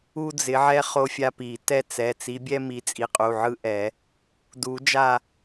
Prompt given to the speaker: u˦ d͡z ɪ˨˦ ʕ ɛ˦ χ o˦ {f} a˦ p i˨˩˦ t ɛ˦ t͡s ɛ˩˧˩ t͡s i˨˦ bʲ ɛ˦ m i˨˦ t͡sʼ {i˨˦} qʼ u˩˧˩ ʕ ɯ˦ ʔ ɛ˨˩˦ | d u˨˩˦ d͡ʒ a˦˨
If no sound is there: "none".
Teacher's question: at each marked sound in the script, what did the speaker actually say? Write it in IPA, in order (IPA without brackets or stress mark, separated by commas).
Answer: fʲ, i˨˦